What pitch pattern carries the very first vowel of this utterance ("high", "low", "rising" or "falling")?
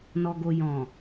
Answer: low